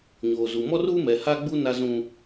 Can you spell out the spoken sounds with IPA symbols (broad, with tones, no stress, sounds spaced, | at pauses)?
ɲ oː˨ z u˨ m ɔ˦ r uː˦ m ɛ˨ h a˦ ɡ͡b u˦ n a˦ z ũ˦